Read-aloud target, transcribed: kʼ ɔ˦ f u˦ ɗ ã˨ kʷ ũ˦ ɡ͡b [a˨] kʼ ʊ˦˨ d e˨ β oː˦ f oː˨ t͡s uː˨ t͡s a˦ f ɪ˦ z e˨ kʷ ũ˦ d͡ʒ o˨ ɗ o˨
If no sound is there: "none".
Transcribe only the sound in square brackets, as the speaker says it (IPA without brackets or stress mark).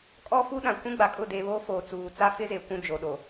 a˨